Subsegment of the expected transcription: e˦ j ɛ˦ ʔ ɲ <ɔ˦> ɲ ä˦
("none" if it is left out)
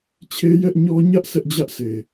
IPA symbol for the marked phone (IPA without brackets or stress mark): ɔ˦